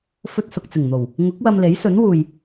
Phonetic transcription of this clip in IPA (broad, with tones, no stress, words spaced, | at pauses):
fɵ˧t̚ sʊ˨k̚t͡sɪ˨˩ŋn̪o˨˩w | ŋʊ˨˥k̚ wɐ˧mle˨˥jsɵ˨˥nwuː˨j